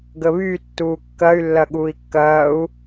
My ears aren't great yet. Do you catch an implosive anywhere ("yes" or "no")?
yes